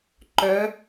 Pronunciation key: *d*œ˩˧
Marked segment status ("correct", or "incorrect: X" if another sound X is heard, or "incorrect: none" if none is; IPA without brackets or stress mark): incorrect: ǃ